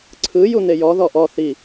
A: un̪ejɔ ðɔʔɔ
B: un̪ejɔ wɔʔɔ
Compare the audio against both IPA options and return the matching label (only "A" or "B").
A